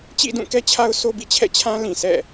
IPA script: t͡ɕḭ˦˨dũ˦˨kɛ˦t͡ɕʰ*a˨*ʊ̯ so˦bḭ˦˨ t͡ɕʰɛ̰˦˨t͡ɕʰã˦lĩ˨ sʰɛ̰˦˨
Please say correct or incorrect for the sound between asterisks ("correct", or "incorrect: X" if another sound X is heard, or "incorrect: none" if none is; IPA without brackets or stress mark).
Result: incorrect: a˦